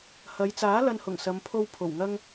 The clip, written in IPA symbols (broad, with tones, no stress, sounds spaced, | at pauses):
h ɐ˨˧ j t͡s aː˨˥ l ɐ˨ n h ʊ˨˩ ŋ s ɐ˨˧ m pʰ o˧ w pʰ o˨˩ w ŋ ɐ˧ ŋ